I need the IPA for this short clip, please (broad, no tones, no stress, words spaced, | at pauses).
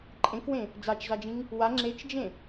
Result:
ǃʼẽkwẽ | d͡zat͡ʃzad͡ʒĩŋ | wa ŋ͡ǁet͡ʃd͡ʒẽ